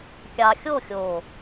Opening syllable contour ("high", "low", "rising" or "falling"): low